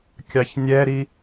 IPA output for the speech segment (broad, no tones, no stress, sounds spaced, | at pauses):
kʲ ɑ ç nʲ ɛ ɾ i